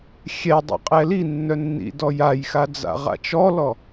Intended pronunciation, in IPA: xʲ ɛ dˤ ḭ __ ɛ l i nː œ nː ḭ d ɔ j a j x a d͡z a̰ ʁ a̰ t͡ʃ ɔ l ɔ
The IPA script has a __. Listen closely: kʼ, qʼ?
qʼ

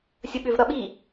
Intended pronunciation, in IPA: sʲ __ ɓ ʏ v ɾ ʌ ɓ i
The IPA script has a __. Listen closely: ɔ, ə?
ə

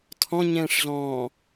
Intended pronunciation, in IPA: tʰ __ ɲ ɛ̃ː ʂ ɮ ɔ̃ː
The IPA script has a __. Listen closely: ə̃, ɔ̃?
ɔ̃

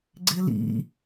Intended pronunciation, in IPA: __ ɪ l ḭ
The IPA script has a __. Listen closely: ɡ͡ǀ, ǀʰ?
ɡ͡ǀ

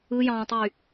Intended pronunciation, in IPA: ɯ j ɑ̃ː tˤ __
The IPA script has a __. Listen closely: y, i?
y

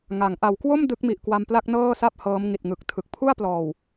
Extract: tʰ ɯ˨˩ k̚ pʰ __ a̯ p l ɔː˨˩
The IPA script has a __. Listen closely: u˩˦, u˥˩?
u˥˩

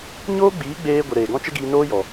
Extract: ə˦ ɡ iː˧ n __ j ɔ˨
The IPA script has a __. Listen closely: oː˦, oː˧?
oː˦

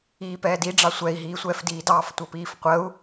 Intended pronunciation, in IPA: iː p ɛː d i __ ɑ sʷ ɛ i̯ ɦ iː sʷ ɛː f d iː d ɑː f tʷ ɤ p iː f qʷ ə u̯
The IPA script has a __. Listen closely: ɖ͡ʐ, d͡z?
ɖ͡ʐ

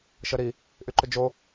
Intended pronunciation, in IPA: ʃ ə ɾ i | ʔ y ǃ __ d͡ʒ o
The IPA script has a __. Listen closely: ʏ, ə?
ʏ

